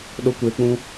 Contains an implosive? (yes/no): yes